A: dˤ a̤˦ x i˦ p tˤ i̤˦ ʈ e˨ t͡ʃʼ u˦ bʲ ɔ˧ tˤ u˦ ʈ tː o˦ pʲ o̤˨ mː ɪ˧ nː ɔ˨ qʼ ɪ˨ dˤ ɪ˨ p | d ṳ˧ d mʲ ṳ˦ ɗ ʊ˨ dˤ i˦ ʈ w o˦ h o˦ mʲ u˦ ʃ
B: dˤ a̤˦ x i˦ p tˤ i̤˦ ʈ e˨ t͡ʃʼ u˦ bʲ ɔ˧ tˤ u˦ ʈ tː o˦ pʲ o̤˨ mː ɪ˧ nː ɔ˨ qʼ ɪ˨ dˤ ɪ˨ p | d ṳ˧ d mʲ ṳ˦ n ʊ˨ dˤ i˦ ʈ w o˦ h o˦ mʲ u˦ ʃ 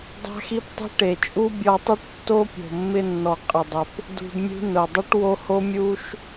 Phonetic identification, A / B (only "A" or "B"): B